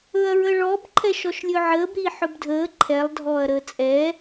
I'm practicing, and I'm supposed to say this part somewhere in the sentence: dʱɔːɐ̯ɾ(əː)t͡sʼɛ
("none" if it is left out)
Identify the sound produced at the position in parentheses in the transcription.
əː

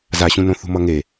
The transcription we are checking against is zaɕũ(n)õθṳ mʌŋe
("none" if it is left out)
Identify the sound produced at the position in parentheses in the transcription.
n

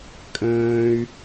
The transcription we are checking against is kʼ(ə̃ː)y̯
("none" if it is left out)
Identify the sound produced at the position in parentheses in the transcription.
ə̃ː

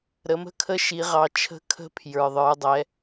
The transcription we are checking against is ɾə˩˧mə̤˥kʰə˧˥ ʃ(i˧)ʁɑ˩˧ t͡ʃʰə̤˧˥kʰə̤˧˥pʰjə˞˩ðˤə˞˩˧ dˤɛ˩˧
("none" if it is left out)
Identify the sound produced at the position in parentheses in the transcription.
i˩˧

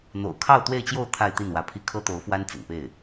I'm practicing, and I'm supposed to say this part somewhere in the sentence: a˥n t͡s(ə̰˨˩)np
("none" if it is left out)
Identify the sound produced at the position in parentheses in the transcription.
ə̰˨˩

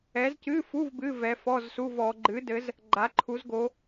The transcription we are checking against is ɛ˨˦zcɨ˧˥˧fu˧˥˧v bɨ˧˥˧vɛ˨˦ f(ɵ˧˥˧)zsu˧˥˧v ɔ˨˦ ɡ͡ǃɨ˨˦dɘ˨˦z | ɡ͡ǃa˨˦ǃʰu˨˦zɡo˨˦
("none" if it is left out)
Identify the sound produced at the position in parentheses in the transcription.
ɔ˧˥˧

